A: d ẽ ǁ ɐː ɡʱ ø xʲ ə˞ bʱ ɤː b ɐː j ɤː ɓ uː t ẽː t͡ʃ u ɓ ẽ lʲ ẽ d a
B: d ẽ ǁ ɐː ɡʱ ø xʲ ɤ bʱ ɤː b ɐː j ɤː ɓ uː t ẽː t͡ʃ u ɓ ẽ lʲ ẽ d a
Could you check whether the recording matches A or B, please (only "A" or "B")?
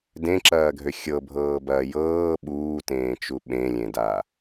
B